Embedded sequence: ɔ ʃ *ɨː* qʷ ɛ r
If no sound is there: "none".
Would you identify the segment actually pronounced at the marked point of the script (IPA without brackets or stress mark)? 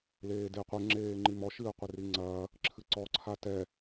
ɨː